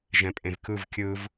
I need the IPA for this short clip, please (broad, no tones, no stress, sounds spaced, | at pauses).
ʒ ɛ̃ pʼ ẽ v k ɯ v kʲ ɯ v